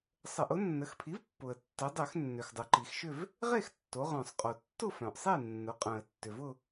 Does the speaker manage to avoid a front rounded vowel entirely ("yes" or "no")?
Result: no